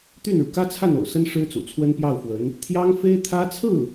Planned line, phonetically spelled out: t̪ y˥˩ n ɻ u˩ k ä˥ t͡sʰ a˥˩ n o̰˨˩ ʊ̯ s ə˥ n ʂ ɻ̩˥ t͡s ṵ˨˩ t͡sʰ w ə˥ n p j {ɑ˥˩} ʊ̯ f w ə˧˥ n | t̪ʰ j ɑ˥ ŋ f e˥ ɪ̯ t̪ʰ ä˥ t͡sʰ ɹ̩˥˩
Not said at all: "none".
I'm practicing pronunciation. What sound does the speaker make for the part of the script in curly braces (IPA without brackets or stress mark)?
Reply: ɑ˥˩